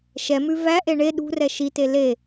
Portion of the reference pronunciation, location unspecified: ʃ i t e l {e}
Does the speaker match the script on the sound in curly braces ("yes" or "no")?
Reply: yes